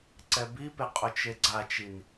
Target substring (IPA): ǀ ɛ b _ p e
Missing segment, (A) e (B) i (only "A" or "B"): B